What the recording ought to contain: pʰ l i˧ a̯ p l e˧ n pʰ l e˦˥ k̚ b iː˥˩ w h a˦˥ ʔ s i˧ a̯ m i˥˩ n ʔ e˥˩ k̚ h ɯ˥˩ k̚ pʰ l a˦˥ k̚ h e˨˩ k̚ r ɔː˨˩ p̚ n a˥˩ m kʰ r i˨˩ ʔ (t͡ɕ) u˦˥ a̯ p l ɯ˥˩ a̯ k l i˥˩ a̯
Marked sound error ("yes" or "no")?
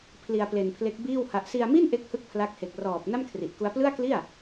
yes